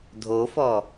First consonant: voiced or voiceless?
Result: voiced